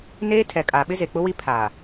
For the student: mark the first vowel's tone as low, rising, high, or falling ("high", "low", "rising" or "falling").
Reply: high